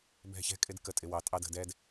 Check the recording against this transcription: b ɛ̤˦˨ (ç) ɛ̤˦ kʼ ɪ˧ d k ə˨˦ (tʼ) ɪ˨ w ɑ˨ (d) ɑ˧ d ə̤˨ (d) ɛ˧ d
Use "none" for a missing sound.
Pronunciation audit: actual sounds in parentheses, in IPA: ç, tʼ, tʼ, d

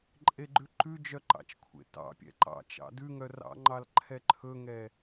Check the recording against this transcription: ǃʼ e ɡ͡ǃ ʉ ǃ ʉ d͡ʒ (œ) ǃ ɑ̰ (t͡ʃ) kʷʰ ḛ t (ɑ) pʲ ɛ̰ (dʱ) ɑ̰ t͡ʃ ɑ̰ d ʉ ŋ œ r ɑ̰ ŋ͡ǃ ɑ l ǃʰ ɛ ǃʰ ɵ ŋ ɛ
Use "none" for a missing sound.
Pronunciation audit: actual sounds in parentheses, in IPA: œ, t͡ʃ, ɑ̰, ǃ

